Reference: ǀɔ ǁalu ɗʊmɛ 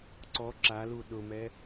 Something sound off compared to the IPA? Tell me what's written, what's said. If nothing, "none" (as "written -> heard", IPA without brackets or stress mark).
none